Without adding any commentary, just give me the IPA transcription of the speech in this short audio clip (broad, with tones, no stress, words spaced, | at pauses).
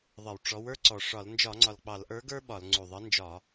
ðˤə˧˩˧wʈ͡ʂɔ˨˥w ə˞˦ǀɔ˨˩ ʂɒ˧˩˧l nd͡ʒɒ˧˩˧ŋ͡ǀɒ˨˩l k͡pɑ˧˩˧lʔə˞˨˥ɡə˞˦ ɓɒ˧˩˧l ŋ͡ǀu˨˩ðˤə˨˥nd͡ʒɒ˧˩˧